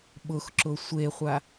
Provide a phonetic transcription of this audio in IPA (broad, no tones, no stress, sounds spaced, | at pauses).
ɓ ʊ x ǁ ʊ sʷ e χʷ a